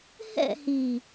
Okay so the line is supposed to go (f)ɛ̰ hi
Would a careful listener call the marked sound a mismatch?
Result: yes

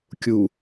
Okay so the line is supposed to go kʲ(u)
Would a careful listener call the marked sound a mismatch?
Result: no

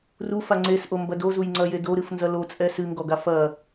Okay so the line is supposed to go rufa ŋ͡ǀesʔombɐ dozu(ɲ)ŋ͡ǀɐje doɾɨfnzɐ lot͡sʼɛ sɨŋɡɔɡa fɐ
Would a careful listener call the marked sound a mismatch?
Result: yes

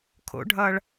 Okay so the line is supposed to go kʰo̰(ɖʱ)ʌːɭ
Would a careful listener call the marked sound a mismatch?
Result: no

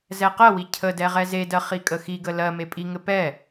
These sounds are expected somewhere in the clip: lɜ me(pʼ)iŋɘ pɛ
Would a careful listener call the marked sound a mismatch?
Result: no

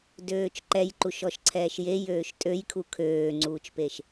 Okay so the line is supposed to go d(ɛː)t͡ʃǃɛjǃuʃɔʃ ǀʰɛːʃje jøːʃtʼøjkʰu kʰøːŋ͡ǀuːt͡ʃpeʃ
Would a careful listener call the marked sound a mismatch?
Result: yes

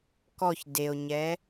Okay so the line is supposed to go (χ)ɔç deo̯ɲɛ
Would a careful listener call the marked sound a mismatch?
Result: yes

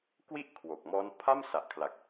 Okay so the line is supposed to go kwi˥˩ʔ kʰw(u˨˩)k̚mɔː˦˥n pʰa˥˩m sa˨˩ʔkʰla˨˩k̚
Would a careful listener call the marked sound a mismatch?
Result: yes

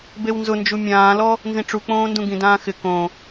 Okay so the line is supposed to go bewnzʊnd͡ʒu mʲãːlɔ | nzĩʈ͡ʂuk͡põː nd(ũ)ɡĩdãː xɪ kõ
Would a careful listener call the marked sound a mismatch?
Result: no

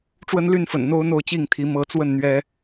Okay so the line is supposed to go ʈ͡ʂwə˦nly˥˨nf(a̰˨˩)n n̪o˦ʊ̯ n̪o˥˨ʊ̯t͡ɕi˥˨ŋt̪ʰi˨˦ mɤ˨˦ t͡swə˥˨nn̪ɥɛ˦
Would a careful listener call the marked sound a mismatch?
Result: yes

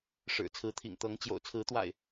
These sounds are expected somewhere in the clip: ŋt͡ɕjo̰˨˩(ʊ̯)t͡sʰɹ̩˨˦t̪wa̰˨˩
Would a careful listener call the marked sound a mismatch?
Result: no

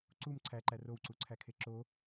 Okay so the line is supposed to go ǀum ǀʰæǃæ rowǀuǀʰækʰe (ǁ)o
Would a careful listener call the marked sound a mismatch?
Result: no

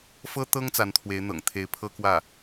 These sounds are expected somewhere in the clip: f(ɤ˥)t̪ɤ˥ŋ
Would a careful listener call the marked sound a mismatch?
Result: no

